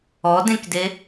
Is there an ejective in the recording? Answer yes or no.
no